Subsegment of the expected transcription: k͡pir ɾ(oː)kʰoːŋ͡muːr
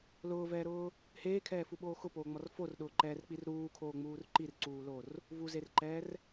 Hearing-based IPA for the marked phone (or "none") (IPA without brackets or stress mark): uː